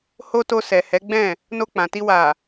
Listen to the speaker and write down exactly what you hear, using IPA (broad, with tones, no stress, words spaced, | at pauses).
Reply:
ho˦to˧sɛ˨ hɛ˨˦ɡ͡bɛ̃˦˨ | no˧k͡pã˨ti˧ wa˨